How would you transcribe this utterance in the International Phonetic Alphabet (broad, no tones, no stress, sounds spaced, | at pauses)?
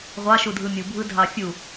ʁʷ ɑ ʃ u dʱ ɯ mʲ u bʱ ɯ dʱ ɑ fʲ u